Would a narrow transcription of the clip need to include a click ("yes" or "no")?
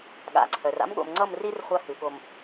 yes